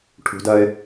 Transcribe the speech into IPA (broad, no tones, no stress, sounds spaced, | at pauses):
ʈʰ ṳ d ɜ ɪ̯